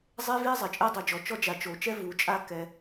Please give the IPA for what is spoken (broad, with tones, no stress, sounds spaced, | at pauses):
zˤ e˥ v i˥ zˤ ɛ˩ t͡ʃʼ e˥ dˤ u˩ d͡ʒ ɔ˩ t͡ʃ ɔ˥ d͡ʒ a˩ t͡ʃ o˩ t͡ʃ ɛ˥ v u˩ t͡ʃʼ a˧ k ɛ˩